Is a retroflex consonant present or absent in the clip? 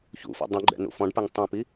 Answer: present